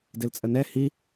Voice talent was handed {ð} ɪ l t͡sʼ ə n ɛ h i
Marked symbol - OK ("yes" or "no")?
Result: no